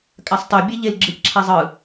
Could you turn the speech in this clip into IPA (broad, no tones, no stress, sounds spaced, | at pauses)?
kʼ a sˤ tˤ i bʲ e ʎ e l ɡ͡ǁ ɯ c ǁʰ a zˤ ɯ